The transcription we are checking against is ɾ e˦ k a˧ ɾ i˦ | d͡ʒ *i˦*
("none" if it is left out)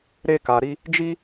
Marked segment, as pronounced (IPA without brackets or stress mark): i˦